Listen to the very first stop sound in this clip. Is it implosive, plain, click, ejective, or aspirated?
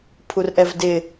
aspirated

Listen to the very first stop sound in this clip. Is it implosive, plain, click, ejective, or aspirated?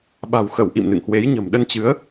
implosive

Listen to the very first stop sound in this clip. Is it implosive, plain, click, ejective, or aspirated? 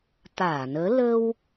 plain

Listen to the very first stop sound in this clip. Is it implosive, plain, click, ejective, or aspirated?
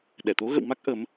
implosive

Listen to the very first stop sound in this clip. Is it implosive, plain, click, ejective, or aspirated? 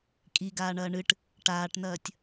ejective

